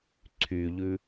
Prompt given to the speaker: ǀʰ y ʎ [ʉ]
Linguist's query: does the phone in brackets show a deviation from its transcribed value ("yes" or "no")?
no